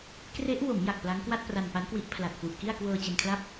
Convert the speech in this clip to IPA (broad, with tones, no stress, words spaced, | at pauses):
kre˦˥ʔwo˩˦m ja˨˩k̚pla˦˥ŋ kwa˥˩t̚pra˧npa˦˥nkwi˦˥ʔ pʰla˨˩t̚fu˨˩ʔki˥˩a̯ kwɤː˧t͡ɕe˧nkʰla˥˩p̚